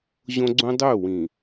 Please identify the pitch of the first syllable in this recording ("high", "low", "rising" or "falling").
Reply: high